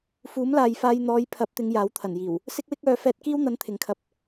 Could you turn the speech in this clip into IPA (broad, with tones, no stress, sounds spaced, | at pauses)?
f uː˨˥ m l aː˨ j f aː˧ j n̪ ɔː˨˧ j pʰ ɐ˨˥ p̚ t̪ ɪ˨˧ ŋ j aː˨˥ w t̪ʰ ɐ˨˩ n j iː˨˩ w | s ɪ˥ k̚ w ɪ˥ k̚ œː˨˧ f ɛː˧ t̚ k iː˥ w n̪ ɐ˨˥ n t̪ʰ ɪ˨ ŋ kʰ ɐ˧ p̚